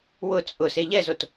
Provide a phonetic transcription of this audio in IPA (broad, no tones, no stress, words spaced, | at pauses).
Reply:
wʊ t͡sʼʊ seʎɛzot